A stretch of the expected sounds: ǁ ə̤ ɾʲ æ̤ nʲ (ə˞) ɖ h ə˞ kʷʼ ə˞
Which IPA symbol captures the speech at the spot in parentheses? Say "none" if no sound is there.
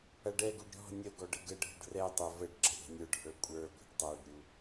ə˞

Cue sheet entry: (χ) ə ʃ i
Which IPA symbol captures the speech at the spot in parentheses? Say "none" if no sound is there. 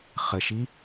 χ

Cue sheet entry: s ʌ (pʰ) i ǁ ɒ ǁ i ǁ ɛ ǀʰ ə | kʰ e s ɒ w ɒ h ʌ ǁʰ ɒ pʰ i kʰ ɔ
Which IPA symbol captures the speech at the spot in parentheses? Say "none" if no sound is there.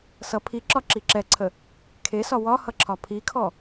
pʰ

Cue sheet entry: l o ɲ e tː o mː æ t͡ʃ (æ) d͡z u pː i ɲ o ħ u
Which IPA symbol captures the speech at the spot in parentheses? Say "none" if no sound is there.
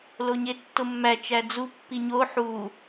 æ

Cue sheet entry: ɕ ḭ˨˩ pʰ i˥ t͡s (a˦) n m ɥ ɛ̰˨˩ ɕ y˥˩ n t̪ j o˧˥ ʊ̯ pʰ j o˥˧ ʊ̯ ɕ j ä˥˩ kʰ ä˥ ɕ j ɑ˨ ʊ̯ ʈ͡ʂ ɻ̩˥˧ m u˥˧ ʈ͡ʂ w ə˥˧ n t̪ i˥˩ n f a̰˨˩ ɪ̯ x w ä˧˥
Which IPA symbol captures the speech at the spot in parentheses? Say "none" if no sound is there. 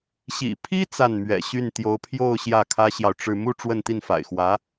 a˥˩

